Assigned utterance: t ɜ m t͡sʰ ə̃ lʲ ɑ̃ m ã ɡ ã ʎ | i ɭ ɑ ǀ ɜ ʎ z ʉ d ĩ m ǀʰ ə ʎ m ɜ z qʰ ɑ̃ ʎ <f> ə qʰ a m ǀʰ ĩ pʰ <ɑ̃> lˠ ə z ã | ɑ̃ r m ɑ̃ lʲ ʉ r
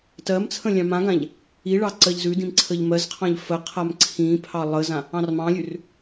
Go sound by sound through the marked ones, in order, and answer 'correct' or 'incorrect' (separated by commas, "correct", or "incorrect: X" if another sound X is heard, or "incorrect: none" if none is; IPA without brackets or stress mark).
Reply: correct, incorrect: ɑ